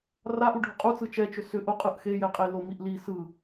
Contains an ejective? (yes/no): yes